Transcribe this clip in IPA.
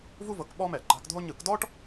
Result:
v u˥ v ɤ˨˦ k ɓ ɔ˥ m ɛ˧˩˧ ǃ a̤˨˦ k dʱ o˥ ɲ ɯ˧˩˧ k d ɔ˥ ʈ

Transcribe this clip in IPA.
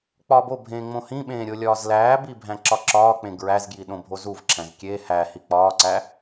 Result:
k͡p ɒː b o bʱ ẽː ŋ͡m õ h ĩ ɓ ẽː ɾʲ o lʲ ɒː z l æː b i bʱ æ̃ ǁ ɒ ǁ ɒː k͡p ẽ ɡ ɹ æ z ɡ j i ɗ õ bʱ o z u v ǁʰ æ̃ z kʲ e h æ h i k͡p ɒː ǀ æ

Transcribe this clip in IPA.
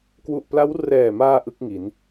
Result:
k w u˨˩ ʔ p l a˦˥ w r ɛː˨˩ m aː˧ ʔ ɯ˦˥ k̚ ŋ i˩˦ n

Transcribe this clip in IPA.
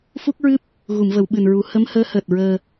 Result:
f u˦˥ k̚ ɹ ɨ˦˥ p̚ | ɣ u˨˩˨ m v ə˨˩˨ w ɓ ɨ˨˩ n ɹ u˨˩˦ h ə˧˥ m h əː˧˥ h əː˨˩ t̚ ɹ əː˧

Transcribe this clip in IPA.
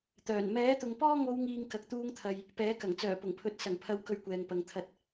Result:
t̪ œː˨˩ n m ɛː˨˥ t̪ ʊ˨ ŋ p ɔː˥ ŋ o˨˧ w ŋ iː˨ ŋ k ɐ˨ k̚ t̪ uː˧ ŋ t̪ʰ ɐ˨ j | p ɛː˨˥ k ɐ˨˩ ŋ t͡s œː˨˩ p ʊ˨˩ ŋ pʰ ɵ˨˥ t̚ s ɐ˨˩ ŋ pʰ ɐ˨˧ w k ɵ˨ ɥ kʷ ɛː˨ ŋ p ɐ˨ ŋ t̪ʰ ɐ˧ t̚

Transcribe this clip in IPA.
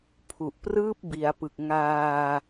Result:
pʰ u˨˩ ʔ p r ɯː˥˩ p̚ b i˩˦ a̯ p ɯ˨˩ k̚ ŋ aː˧

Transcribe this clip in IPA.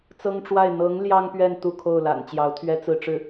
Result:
t͡s ɤ˥ ŋ ʈ͡ʂ w a˥˩ ɪ̯ n̪ ɤ˧˥ ŋ l j ɑ˥ ŋ p ɥ ɛ˥˧ n t̪ u˥˧ kʰ o˥˩ ʊ̯ l a̰˨˩ n t͡ɕ j ɑ˧˥ ʊ̯ t̪ʰ ɥ ɛ˥ t͡s ɹ̩˥˧ ʈ͡ʂ ɻ̩˥˩

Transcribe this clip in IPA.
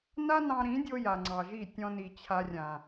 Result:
n a˦ n ɑ̃˧ ɾ ĩ˨˦ dʲ o˧ j a˨ ŋ͡ǀ ɑ˨ ʒ i˦˨ tʲ ɔ̃˧ n i˨ t͡ɕʰ a˧ rʲ ã˨

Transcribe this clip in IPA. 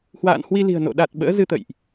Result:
h w a̰ː˧˨ n h w i˧ l i̤˨˩ ə̯ n o̰˧˨ ɗ a˨˩ t̚ ɓ ə̰ː˧˥ z ɨ˧ t̪ ə̰˧˨ j ʔ

